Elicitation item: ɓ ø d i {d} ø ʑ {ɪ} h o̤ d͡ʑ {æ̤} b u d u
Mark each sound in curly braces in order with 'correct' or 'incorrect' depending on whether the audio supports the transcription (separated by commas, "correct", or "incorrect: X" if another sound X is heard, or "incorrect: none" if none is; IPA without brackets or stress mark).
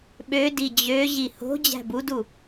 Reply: incorrect: d͡ʑ, incorrect: i, correct